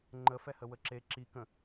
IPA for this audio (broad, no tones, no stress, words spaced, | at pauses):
ŋ͡ǃəfɛhə wəǁe ǁi kə̃